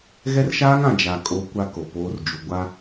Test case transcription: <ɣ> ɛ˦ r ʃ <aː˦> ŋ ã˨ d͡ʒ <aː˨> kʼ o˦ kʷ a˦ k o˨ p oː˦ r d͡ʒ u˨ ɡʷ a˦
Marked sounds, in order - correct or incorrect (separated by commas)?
correct, correct, incorrect